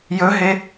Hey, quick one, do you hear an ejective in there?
no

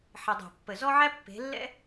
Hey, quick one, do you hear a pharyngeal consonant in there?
yes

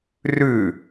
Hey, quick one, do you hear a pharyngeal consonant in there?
no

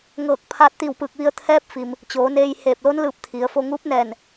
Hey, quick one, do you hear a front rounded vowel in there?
no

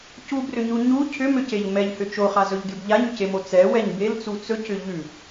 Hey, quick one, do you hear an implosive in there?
no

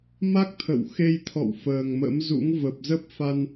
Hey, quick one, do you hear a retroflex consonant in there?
no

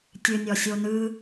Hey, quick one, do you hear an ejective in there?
no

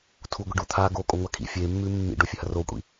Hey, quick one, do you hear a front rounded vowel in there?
no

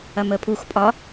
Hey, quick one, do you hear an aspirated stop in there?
yes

